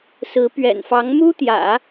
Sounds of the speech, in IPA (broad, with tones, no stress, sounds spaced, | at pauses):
s ɹ̩˧˥ p ɥ ɛ̰˨˩ n f ɑ˧˥ ŋ m u˥ t̪ j ä̰˨˩˦